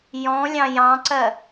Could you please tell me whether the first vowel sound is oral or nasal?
nasal